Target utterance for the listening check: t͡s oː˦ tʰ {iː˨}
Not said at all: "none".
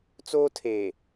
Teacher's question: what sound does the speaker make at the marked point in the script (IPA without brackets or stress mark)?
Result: eː˨